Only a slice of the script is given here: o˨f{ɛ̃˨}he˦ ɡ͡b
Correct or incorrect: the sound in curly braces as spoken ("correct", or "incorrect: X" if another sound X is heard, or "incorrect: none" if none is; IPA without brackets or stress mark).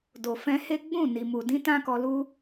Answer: incorrect: ɛ̃˧